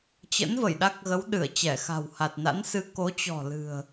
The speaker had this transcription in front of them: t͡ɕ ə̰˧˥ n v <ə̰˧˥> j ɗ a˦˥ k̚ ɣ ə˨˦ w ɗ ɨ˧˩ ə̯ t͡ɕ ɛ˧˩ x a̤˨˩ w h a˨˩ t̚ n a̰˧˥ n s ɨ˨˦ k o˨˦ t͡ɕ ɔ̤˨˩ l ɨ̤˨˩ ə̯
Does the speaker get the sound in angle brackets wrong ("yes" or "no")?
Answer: yes